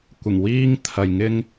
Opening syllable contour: low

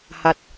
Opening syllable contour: low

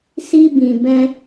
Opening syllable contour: high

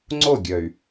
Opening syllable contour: falling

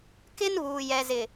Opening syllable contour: high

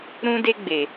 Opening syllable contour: high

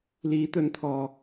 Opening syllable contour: rising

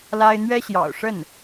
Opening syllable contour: high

